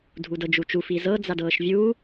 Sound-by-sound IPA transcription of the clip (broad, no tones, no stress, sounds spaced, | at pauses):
dʱ u d ɤ d͡ʒ u t͡ʃ u f i z ɤ d͡z a d ɤː ʃ vʲ uː